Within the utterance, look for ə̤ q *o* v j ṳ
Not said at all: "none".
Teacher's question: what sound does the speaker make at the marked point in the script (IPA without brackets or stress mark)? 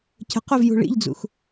o